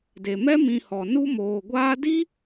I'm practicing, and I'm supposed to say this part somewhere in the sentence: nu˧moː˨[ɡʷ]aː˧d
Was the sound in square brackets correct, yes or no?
yes